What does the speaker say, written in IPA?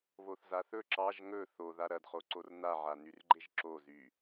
β o θ z a θ ɵ ǁ ɑ ʒ ŋ ɵ θ o ð a ɾ ɐ d χ o ǀ o r n a ʕ a n y r ɡ͡ǃ e ʒ ǁ o z y

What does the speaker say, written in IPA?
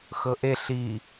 x ɤ ʔ e ɬ i

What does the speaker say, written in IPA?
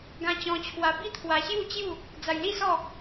ɡ ã˧ t͡ɕ ɔ̃˧ t͡ɕʰ w a˧ b i˥˧ t̪ʰ w a˧ ɕ j u˥˧ t͡ɕ j u˥˧ | d͡z a˧ j l i˥˧ s ɔ˥˧

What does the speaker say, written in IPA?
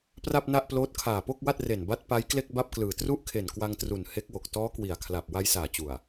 p r a˥˩ p̚ n a˥˩ ʔ p l oː˦˥ t̚ kʰ aː˨˩ p o˥˩ k̚ w a˥˩ t̚ r e˨˩ n b a˦˥ t̚ p a˦˥ j k l e˥˩ k̚ b a˥˩ p̚ k l ɯː˨˩ t r u˥˩ ʔ kʰ e˨˩ n k w a˧ ŋ t r u˨˩ n h e˦˥ k̚ w o˨˩ k̚ t ɔː˦˥ k w i˨˩ a̯ kʰ l a˨˩ p̚ w a˧ j s aː˨˩ t͡ɕ u˨˩ a̯

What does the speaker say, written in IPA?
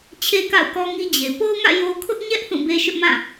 t͡ɕʰ e˦ k a̰˦˨ ʊ̯ k ɔ˦ ŋ i˦ d͡ʑ e˨ p o˦ ʊ̯ ŋ ä̰˦˨ j o˦ kʰ ʊ˦ ʔ ɲ ɛ˦ ʔ θ ũ˦˨ b e˦ ʃ ʊ˦ ʔ m ã˦˨

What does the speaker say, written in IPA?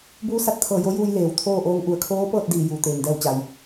b uː˧˥ s a˧˩ t̚ t̪ʰ ɤː˧˩ j o˧˥ j uː˧ j l eː˩ w t̪ʰ oː˥˨ ʔ oː˧˥ ŋ ʔ u˩ ə̯ kʰ oː˧˥ p ɤː˥˨ t̚ d iː˧˩ j uː˩ t̪ eː˩ ŋ d ɛː˥˨ w t͡ɕ a˩ j

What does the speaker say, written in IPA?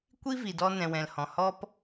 kʷ i˦ v i˨ d ɔ˦ n ɛ̃˨ w ɛ̃˨ l h ɔ̃˨ h ɔ˦ p

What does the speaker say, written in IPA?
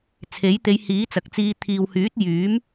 t͡sʰ e˨˥ j t̪ e˨˧ j h iː˨˥ t͡s ɐ˨ k̚ t͡s iː˧ t̪ʰ iː˨ w h yː˨˥ t̚ j yː˨˥ m

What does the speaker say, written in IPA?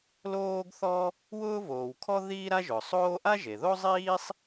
l oː˥ ɡ θ ɔ˥ | w ʊː˥ v oː˩ w kʰ ɔ˥ ð iː˥ ɾ a˥ ʒ ʊː˩ sˤ oː˥ ʔ a˥ ʒ e˩ ð o˥ zˤ iː˥ sˤ

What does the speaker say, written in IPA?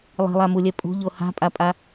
lˠ i̤ lˠ a m u lʲ ɛ pʼ ṳ ʎ o h a̤ pʼ a pʼ a

